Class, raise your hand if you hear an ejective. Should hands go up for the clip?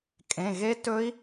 yes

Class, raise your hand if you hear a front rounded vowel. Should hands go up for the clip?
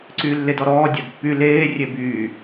yes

